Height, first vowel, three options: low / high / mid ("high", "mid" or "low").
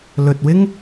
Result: mid